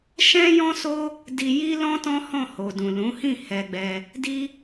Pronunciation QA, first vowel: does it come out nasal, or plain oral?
nasal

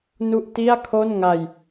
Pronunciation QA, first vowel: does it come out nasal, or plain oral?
oral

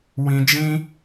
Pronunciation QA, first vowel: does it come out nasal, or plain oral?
nasal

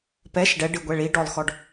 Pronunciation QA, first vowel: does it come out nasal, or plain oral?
oral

